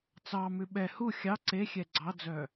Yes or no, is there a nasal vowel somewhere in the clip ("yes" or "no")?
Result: no